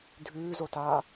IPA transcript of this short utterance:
dʱʉːzotaː

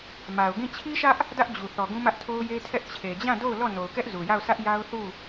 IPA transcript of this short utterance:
ma˨ʊ̯ɡĩ˦˨ t͡ɕʰi˦ʃä˦ʔ | dä˦ʔ d͡ʑu˨ θɔ˨ɡũ˦mä˦ʔtʰo˦ʊ̯ je˦tʰɛ˦ʔ t͡ɕʰe˨d͡ʑã˦˨do˦˨ʊ̯ lɔ˦˨ no˨ʊ̯kɛ˦ʔ zu˨ja˦˨ʊ̯ sä˦ʔja˦ʊ̯ θu˦˨

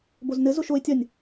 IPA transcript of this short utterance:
boznɘ zoʃoɪ̯ tʲɐnʲ

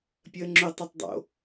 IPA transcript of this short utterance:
pʲəːŋ͡ǁʏ tˤɛtˤdˤo̰

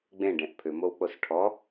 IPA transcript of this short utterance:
ɡ͡bẽɖẽʔ pʰʏmowk͡pos ʈʰɔ

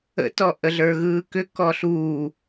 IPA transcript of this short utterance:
ə̰tɔ ʔəɮə˞ɣɯːkʏ kɔɬuː

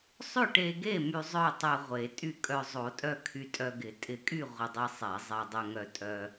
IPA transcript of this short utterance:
sˤʏ˥˩ʈe˧ɡe˥˩ my˧zˤœ˥˩tˤɛ˧ ʁʷe˨˩˦tʼy˥˩kʼœ˧ zˤo˨˩˦tʼœ˧ kʰy˧tʼœ˧ɡɪ˨˩˦ tʼɪ˨˩˦kʼy˥˩ ʁʷɪ˧dˤi˧sˤɛ˨˩˦ zˤe˧dˤʏ˧ŋœ˧tʼœ˧

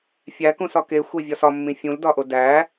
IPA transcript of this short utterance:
fʲækũsɒ kexʷe vʲɒsɒmːĩ fʲũldɒʔo dæ

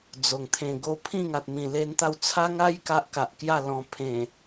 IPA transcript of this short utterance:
d͡zo˨˩ŋ t̪ʰẽ˨˩ɡo˧ pʰĩ˥˧ŋa˨t̚mĩ˨˩ le˦nt̪a˥˧w t͡sʰa˦ŋa˦j ka˦ʔka˨ʔ kja˥˧lɔ̃˧ pʰẽ˨˩

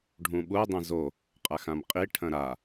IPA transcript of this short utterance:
ɖʱũɓu dˤẽzo | qʼaxãmqʼi ʈʰɐ̃ɾa

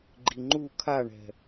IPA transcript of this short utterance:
ɡ͡ǃiŋ͡ǃu kʰaɳɛ̤

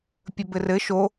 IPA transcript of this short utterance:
pʲɵbɘrɘ ʃo

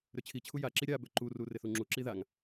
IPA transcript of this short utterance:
ɾøt͡ɕʰit͡ɕʰu jaǁi ɾʲa bøǃuru rɪθuŋ͡ǁuǁi ðaŋ

